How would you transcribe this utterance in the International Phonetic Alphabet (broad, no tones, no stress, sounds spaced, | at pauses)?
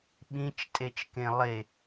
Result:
ɓ ĩ t͡ʃ tʼ e t͡ʃ k ẽ lˠ e